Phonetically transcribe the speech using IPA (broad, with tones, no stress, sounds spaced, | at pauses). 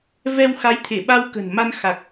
v ɛ˧ w x a˨˦ j t̪ʰ e˧˩ ɓ a˧ w k ə̤˨˩ n m a˧ n x a˨˩ k̚